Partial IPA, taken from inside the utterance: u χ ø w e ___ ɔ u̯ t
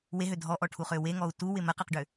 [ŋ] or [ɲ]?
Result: ŋ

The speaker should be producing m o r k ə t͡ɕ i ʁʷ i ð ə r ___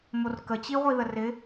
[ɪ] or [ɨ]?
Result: ɪ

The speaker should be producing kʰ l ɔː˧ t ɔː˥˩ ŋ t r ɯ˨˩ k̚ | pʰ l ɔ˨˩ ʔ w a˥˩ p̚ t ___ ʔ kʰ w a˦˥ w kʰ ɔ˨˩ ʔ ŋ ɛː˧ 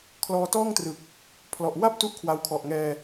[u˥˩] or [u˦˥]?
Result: u˥˩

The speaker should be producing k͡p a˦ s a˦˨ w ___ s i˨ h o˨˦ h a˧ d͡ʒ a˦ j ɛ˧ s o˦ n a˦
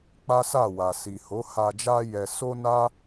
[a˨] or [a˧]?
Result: a˨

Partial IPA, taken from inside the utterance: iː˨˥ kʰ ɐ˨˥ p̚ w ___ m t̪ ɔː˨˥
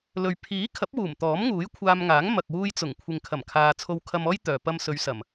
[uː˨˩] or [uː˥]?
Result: uː˨˩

